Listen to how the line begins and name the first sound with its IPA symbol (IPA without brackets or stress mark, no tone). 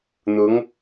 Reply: n̪